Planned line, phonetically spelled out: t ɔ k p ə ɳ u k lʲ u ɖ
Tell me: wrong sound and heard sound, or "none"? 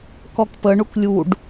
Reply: t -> k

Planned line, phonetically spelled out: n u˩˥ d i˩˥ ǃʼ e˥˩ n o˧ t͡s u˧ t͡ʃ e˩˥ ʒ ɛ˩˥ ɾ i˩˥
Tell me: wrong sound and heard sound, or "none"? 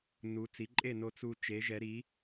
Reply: d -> t͡s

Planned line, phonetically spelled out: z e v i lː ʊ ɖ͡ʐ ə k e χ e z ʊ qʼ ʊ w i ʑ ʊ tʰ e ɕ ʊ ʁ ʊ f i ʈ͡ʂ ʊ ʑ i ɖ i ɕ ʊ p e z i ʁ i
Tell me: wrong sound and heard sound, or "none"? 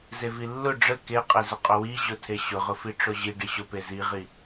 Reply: χ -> qʼ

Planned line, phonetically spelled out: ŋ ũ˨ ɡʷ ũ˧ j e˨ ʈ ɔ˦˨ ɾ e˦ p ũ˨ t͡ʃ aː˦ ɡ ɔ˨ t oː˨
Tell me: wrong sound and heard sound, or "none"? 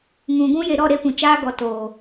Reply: ʈ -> ɾ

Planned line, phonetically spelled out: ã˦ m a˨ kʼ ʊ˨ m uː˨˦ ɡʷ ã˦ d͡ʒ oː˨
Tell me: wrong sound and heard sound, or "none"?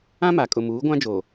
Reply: none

